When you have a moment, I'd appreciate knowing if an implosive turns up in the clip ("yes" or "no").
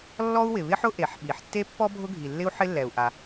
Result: yes